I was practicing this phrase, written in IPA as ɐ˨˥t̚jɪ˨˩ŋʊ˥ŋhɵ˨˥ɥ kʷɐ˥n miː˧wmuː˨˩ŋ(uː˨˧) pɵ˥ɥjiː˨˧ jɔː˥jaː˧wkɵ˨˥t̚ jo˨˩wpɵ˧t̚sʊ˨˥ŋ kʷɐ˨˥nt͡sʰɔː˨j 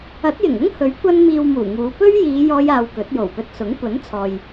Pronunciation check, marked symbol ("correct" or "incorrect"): correct